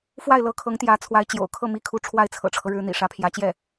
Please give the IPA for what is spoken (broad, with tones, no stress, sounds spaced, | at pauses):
f w a˥˩ ɪ̯ l ɤ˧˥ kʰ ɤ˧˥ ŋ t̪ j ä˧˥ t͡sʰ w a˧˥ ɪ̯ t͡ɕ j o̰˨˩ ʊ̯ kʰ ɤ˥˩ m i˥ kʰ u˧˥ ʈ͡ʂʰ w a˥˩ ɪ̯ t͡sʰ ɤ̰˨˩ ʈ͡ʂʰ ɤ˦ ɻ ɻ̩˧˥ n̪ ḭ˨˩ ʂ ä˧˥ pʰ j ä˧˥ t͡ɕ j ɛ˥˩